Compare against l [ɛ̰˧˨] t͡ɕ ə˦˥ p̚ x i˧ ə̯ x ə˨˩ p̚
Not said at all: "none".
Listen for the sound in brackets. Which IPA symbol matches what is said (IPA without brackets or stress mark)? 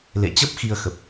ḛ˧˨